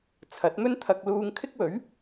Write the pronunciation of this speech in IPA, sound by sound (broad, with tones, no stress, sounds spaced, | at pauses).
t͡sʰ ɐ˨˥ t̚ m ɵ˥ n t̪ʰ ɐ˨ k̚ l uː˧ ŋ kʰ ɪ˥ k̚ w ɵ˨˥ ɥ